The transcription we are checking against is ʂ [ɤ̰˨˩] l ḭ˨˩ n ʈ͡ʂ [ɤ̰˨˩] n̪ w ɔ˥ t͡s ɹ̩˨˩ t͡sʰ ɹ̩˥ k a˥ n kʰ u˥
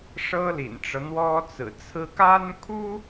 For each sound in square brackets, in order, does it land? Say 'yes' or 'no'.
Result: no, no

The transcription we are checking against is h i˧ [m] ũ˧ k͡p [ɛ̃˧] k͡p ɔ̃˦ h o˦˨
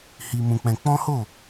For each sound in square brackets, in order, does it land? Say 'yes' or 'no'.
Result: yes, yes

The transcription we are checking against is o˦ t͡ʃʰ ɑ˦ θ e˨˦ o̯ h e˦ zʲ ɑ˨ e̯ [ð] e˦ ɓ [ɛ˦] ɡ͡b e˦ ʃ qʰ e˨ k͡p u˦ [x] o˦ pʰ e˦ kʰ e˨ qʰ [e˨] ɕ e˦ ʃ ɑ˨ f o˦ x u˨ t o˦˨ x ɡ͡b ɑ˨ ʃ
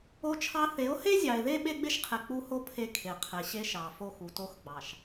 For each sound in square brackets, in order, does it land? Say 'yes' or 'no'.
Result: yes, no, no, yes

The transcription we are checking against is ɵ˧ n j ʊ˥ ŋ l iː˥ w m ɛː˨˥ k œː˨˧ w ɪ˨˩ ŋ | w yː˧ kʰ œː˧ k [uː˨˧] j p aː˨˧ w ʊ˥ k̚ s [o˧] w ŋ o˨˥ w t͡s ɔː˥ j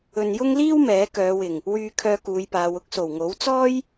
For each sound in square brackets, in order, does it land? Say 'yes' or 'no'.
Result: yes, no

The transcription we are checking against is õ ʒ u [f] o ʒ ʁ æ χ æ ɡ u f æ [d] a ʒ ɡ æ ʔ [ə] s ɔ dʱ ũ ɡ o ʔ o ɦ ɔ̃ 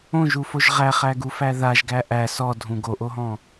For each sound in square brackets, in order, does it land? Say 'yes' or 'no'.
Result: yes, no, no

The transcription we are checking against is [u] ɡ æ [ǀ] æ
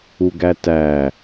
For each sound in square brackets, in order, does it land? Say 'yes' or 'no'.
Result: yes, no

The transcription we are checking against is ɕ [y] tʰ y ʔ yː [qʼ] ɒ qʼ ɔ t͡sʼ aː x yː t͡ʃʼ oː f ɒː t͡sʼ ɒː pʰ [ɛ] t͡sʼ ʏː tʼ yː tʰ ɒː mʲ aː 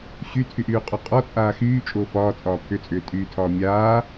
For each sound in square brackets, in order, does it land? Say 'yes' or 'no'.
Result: yes, yes, no

